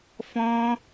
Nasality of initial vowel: nasal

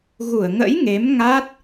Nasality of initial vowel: oral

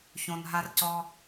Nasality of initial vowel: nasal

